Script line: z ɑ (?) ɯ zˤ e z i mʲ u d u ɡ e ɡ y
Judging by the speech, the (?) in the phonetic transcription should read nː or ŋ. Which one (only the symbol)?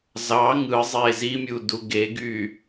ŋ